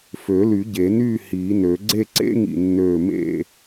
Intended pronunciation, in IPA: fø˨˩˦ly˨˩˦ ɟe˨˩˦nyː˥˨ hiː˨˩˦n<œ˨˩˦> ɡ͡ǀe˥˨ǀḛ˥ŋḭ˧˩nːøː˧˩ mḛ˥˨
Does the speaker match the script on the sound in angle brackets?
no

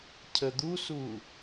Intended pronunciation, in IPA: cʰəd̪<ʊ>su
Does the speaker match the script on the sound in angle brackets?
no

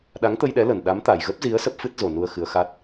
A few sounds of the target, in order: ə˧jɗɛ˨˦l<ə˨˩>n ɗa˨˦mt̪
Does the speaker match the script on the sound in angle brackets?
yes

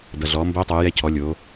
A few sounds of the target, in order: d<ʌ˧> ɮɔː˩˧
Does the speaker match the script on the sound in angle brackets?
no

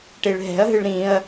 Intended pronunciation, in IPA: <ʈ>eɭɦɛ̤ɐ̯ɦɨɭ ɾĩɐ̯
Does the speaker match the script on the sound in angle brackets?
yes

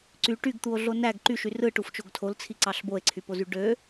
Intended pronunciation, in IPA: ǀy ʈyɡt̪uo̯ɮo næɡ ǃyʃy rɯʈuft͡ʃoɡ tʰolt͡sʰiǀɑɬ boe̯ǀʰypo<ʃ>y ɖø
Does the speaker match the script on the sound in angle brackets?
no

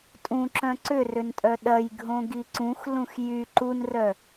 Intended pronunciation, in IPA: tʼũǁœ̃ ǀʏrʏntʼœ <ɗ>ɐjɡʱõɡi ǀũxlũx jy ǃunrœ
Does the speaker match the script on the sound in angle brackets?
yes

